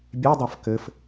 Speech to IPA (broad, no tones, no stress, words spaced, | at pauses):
bʲedˤaf kɘf